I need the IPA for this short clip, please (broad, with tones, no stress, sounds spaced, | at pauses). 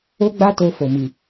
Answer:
o˦ ɡ͡b a˦ t o˧ f o˨ m i˨